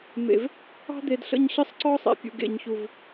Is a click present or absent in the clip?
present